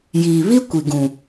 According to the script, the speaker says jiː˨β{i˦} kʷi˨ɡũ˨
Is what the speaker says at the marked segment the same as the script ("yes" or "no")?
yes